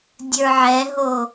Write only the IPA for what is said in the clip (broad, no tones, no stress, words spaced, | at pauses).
dʲə˞ʕɛɦo